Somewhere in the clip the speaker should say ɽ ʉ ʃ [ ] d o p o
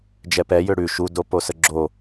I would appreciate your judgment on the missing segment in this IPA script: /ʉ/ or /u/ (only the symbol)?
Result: u